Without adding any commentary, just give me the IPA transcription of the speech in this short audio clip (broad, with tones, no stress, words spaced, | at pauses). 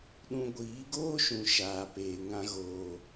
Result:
ɗũ˧ɡʷiː˨˦ɡoː˦ʃũ˨ ʃaː˨peː˨ ŋã˧ɣoː˨